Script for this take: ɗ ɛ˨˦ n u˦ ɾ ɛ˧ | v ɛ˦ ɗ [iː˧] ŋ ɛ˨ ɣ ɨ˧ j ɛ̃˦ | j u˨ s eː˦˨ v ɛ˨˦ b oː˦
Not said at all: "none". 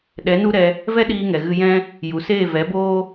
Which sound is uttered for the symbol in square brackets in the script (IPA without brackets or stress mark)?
iː˧